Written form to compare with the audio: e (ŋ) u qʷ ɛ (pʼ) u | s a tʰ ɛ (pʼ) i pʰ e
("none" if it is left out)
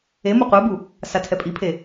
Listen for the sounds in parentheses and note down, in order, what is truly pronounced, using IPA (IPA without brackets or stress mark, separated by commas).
m, b, pʼ